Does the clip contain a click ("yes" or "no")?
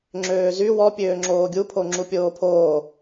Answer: yes